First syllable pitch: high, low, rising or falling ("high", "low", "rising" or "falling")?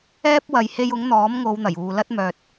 high